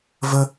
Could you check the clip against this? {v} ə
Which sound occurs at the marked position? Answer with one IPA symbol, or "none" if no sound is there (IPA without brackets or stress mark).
v